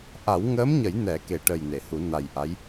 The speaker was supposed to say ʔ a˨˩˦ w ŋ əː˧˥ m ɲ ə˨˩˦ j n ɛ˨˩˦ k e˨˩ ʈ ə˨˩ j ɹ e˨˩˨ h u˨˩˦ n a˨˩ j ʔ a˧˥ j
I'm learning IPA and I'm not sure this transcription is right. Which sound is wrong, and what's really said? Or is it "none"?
ɹ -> n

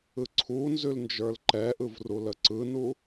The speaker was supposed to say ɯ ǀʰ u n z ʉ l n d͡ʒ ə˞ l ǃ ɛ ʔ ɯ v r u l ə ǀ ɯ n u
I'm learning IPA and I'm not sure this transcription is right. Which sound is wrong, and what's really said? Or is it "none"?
none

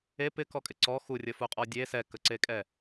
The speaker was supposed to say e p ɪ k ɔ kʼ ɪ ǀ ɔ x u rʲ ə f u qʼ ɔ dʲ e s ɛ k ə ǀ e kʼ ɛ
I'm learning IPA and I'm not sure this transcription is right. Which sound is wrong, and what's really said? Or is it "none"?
none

